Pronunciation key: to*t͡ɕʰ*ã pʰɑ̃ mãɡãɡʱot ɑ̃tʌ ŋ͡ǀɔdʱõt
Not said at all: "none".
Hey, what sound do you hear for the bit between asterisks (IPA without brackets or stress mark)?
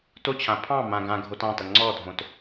t͡ɕʰ